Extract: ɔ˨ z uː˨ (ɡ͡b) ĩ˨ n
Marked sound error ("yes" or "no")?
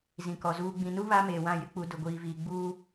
no